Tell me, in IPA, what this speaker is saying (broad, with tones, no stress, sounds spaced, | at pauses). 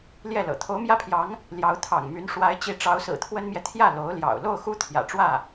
l j ɛ˥˩ l ɤ̰˨˩ t̪ʰ o˧˥ ʊ̯ m j ä˥ pʰ j ɑ˧˥ ŋ | l j ɑ˧˥ ʊ̯ t̪ʰ ɑ̰˨˩ ŋ m y˧˥ n ʂ w a˧˥ ɪ̯ t͡ɕ i˧˥ ʈ͡ʂ ɑ˧˥ ʊ̯ s ɹ̩˨˩ t̪ʰ w ə˥ n m j ɛ˨ t̪ʰ j ä˥˩ l o˧˥ ʊ̯ l j ɑ̰˨˩ ʊ̯ l o˥˩ ʊ̯ x u˥ t̪ʰ j ä̰˨˩ ʈ͡ʂ w ä˥˩